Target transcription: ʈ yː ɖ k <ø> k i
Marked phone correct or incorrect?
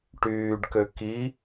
correct